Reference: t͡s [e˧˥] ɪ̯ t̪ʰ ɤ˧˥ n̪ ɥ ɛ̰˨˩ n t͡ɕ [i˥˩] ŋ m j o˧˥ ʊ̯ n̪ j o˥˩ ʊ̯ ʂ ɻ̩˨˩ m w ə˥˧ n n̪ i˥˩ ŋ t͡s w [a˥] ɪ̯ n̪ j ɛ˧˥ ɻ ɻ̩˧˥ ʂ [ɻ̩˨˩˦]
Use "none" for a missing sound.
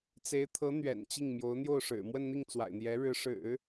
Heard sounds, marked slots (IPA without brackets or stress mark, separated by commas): e˧˥, i˥˩, a̰˨˩, ɻ̩˨˩˦